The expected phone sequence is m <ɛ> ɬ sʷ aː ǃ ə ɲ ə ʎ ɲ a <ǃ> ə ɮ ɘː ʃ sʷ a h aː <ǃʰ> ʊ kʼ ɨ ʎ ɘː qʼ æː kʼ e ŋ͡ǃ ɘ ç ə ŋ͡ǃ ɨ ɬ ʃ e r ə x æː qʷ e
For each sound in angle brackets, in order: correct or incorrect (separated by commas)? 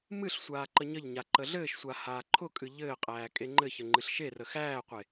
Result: incorrect, correct, correct